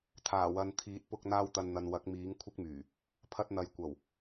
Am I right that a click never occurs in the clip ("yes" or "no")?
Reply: yes